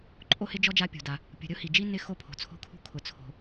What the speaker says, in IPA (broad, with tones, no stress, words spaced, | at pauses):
ǃʼo˥hɪ˥d͡ʒɔ˥ d͡ʒa˥pʲṳ˩da˩ | pʲṳ˩ɾʲʊ˥hi˩d͡ʒi˥ nɪ˥ xo˥pʰo̤˩t͡sʰo̤˥kʰṳ˥ kʰʊ˩t͡sʰo̤˩